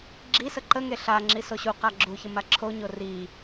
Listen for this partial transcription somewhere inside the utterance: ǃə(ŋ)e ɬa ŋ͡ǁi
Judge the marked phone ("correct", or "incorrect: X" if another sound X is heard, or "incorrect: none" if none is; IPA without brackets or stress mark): correct